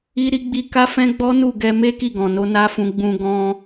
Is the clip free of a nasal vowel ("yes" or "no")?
no